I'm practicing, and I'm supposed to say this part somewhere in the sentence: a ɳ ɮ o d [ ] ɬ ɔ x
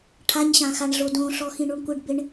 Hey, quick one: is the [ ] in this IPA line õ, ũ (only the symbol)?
õ